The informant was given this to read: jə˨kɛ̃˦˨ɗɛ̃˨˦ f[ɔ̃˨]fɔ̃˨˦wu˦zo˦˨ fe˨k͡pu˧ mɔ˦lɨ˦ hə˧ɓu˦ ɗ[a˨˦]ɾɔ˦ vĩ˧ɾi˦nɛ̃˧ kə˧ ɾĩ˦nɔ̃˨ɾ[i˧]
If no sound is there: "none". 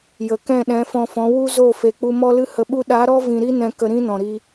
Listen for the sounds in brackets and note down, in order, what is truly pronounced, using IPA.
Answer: ɔ̃˧, a˨˦, i˧

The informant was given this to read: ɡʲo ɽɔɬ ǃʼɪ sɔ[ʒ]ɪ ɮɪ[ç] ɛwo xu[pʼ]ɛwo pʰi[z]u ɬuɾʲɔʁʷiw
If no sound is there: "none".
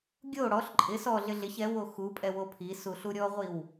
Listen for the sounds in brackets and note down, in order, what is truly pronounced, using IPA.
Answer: ɮ, ç, pʼ, s

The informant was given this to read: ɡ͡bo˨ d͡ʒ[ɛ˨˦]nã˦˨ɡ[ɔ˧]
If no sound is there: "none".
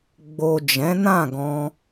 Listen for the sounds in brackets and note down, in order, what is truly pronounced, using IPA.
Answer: ɛ̃˨˦, ɔ̃˧

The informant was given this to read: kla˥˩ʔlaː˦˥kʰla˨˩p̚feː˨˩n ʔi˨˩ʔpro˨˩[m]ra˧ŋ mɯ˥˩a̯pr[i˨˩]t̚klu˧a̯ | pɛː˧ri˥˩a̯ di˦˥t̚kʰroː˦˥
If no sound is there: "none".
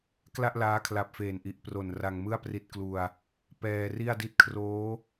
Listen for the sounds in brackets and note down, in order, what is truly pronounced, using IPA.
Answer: n, i˦˥

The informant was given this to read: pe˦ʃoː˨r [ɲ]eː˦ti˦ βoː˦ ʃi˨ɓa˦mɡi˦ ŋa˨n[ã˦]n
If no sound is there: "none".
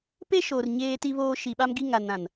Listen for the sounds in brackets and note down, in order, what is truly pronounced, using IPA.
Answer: ɲ, ã˨

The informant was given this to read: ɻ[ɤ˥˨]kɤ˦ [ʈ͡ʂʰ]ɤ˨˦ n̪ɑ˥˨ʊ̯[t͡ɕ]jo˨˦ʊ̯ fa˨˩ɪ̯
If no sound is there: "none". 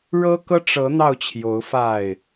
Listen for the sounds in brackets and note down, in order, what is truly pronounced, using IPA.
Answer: ɤ˦, ʈ͡ʂ, t͡ɕʰ

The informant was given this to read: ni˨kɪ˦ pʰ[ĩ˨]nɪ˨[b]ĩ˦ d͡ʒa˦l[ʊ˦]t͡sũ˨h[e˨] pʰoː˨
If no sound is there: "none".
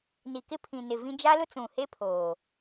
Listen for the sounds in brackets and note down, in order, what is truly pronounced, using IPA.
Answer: ĩ˨, v, ʊ˦, e˦

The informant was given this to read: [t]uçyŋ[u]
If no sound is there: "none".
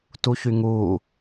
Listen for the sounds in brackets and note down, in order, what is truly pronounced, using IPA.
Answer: t, u

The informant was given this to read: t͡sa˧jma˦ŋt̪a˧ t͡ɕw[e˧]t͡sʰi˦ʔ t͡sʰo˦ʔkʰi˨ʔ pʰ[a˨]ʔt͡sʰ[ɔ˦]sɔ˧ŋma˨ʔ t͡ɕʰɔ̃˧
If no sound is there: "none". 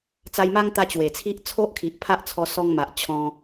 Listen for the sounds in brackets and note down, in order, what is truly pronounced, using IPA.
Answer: e˨˩, a˦, ɔ˧

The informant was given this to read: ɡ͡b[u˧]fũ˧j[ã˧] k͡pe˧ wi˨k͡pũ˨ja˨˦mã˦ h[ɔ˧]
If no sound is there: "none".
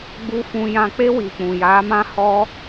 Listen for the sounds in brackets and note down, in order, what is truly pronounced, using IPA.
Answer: u˧, ã˧, ɔ˧

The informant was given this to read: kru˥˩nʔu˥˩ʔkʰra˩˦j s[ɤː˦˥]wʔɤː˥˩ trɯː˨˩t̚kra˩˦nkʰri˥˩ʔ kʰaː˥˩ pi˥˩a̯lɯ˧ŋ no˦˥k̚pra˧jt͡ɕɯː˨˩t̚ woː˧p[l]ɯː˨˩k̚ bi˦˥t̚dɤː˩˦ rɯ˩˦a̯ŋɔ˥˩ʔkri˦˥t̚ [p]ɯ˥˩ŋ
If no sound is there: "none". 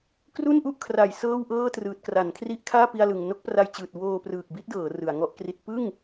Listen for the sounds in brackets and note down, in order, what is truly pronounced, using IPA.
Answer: ɤː˥˩, r, p

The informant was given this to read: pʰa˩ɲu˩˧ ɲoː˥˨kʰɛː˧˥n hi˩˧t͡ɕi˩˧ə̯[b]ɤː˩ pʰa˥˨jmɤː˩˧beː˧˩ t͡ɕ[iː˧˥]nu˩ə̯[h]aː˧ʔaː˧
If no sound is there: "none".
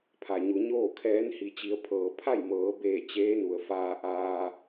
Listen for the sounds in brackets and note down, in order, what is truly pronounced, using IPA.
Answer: pʰ, eː˧˥, f

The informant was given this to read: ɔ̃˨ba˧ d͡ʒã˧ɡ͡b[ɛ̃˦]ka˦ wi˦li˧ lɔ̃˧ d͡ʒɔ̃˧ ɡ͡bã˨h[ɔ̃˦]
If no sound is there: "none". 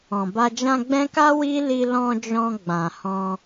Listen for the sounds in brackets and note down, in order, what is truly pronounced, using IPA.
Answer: ɛ̃˦, ɔ̃˧

